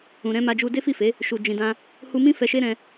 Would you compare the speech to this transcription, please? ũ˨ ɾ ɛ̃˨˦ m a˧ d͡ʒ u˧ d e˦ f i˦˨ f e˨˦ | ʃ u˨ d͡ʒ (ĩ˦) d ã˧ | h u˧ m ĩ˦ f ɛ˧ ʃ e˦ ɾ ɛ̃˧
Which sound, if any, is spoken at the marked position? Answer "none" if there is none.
ĩ˨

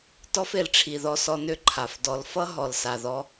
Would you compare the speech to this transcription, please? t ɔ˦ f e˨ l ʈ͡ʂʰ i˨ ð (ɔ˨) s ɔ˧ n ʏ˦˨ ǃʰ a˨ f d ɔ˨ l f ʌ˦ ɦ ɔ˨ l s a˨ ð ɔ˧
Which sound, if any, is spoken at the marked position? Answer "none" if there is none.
ɔ˧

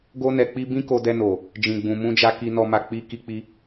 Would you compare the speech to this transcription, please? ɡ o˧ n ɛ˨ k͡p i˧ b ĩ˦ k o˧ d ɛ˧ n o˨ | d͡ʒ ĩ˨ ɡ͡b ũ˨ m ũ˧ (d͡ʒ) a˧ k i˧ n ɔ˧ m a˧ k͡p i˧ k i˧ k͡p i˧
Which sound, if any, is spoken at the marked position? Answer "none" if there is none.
d͡ʒ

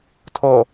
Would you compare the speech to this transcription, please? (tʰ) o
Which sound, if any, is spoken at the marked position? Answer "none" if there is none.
tʰ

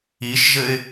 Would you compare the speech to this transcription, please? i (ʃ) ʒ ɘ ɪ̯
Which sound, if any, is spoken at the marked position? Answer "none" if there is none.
ʃ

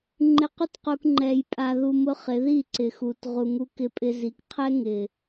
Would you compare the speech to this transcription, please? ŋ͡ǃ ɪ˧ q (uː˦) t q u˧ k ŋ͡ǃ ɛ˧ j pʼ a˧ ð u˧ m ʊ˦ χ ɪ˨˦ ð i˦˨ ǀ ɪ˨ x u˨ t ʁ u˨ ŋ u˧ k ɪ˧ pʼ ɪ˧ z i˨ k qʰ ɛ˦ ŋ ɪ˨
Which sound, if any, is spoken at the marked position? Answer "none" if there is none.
u˦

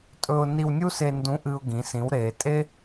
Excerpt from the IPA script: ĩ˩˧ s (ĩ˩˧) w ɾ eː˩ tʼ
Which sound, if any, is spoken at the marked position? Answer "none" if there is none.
ĩ˩˧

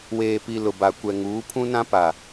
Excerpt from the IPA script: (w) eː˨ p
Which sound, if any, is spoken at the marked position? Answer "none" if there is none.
w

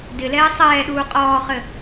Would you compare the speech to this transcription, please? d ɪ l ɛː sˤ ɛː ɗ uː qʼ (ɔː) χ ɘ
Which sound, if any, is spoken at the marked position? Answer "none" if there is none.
ɔː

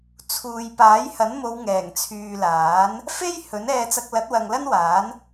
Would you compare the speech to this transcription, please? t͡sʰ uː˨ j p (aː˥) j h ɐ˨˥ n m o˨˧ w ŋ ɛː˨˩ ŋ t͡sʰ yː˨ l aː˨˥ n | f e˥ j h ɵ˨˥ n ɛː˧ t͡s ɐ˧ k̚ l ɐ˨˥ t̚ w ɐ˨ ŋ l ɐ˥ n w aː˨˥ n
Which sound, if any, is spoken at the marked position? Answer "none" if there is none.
aː˨˥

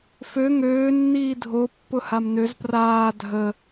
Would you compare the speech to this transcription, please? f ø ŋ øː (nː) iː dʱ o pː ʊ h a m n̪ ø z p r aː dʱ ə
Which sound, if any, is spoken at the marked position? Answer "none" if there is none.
nː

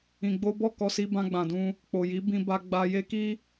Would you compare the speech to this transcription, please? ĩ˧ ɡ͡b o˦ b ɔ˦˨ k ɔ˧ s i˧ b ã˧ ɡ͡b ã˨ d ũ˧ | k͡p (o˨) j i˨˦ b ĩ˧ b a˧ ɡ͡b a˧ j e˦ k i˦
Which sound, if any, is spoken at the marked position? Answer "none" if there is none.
o˨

